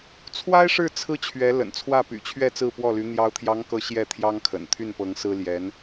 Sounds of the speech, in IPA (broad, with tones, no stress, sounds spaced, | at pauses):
t͡sʰ w a˥ ɪ̯ ʂ ɻ̩˥˩ t͡sʰ ɹ̩˥ t͡ɕʰ ɥ ɛ˧˥ l ə̰˨˩ n t͡sʰ w ä˥˩ p y̰˨˩ t͡ɕʰ ɥ ɛ˥˧ t͡s ɹ̩˥˧ p w ɔ˥˩ l y˧˥ n̪ j ɑ˧˥ ʊ̯ t̪ʰ j ɑ˧˥ ŋ k ɤ˧˥ ɕ j ɛ˥˩ t̪ʰ j ɑ˥ ŋ kʰ ə̰˨˩ n t̪ʰ y˥˩ n p ɤ˧˥ ŋ s ɹ̩˥ l j ɛ˧˥ n